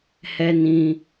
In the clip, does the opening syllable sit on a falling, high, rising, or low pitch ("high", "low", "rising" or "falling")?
high